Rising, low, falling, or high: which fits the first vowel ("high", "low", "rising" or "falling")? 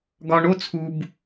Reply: low